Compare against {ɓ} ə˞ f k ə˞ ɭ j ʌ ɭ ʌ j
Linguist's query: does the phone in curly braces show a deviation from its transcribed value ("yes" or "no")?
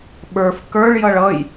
no